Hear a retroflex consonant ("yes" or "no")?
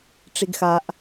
yes